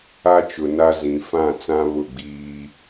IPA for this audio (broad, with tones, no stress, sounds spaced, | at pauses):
a˦ t͡ʃ ʊ˨ n a˦ z ĩ˨ f ã˦˨ t͡s ã˦ β ʊ˦˨ ɡ͡b iː˦